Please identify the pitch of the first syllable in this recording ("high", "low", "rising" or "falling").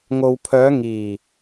low